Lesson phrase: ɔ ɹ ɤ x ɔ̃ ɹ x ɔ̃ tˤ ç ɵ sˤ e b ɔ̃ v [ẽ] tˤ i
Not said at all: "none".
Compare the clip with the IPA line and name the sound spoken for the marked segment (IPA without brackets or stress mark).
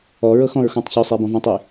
ẽ